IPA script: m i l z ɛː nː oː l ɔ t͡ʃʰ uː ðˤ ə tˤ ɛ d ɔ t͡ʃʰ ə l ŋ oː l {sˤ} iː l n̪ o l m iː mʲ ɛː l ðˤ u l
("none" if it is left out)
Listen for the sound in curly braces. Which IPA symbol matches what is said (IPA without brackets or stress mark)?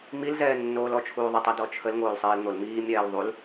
sˤ